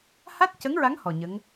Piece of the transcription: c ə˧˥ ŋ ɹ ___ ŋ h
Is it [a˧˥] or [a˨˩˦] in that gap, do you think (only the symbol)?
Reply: a˧˥